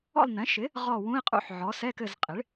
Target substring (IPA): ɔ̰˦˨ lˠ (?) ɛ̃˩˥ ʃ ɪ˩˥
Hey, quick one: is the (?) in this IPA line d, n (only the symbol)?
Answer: n